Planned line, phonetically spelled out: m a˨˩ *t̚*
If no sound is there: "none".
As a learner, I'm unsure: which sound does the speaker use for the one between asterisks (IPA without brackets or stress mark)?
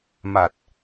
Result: t̚